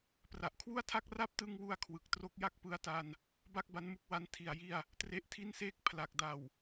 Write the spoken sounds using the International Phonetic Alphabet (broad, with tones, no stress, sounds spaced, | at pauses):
p r a˨˩ ʔ kʰ w u˥˩ a̯ tʰ a˥˩ k̚ r a˥˩ p̚ t ɯ˧ ŋ w u˧ a̯ kʰ w ɯ˨˩ k̚ t r o˥˩ k̚ j a˥˩ k̚ p ɯ˦˥ a̯ t a˧ n | b a˥˩ k̚ b a˦˥ n m u˦˥ k̚ w a˦˥ n tʰ i˨˩ a̯ j i˥˩ a̯ | t r e˦˥ ʔ tʰ i˥˩ n s eː˥˩ k̚ pʰ l a˨˩ k̚ d a˨˩ w